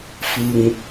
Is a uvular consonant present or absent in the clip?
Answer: absent